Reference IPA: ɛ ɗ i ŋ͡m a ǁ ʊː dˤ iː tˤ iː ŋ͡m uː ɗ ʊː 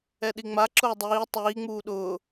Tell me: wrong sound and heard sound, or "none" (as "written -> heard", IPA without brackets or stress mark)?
none